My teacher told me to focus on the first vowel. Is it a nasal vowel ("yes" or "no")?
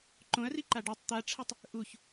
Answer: yes